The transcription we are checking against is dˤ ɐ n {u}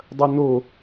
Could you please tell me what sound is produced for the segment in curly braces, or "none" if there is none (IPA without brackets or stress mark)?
o